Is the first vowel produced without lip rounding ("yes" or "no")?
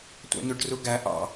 yes